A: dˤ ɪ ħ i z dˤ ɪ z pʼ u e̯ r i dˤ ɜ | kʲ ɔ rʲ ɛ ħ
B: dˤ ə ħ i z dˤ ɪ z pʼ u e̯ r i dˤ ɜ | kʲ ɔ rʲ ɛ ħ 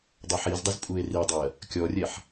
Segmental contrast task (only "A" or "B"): B